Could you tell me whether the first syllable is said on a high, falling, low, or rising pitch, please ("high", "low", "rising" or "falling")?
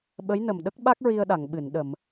rising